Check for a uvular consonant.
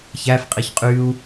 present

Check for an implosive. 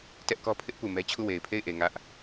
absent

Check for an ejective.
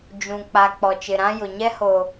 absent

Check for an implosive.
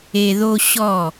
absent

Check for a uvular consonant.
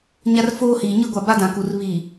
absent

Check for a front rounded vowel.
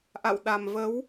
absent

